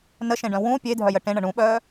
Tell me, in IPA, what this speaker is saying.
n ə ʃ ẽ ɖ œ̃ w ũ pʲ e dʱ œ j ə ʈ ẽ ɳ ə ɳ ũ ɓ œː

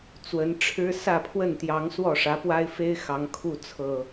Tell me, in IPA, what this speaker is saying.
t͡s w ə˨˦ n ʈ͡ʂʰ ɻ̩˦ s ä˥˨ pʰ w ə˥˨ n t̪ j ɑ˨˦ ŋ s w ɔ˥˨ ʂ ä˨˦ p w a˦ ɪ̯ f e˦ ɪ̯ x ɑ˨˦ ŋ kʰ u˥˨ t͡sʰ ɤ˨˩

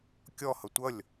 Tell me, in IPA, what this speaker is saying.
kʲ ɔ h ʌ tʷ ʌ lʲ

